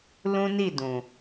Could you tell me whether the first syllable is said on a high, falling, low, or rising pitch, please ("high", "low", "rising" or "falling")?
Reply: high